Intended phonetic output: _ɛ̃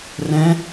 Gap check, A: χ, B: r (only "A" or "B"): B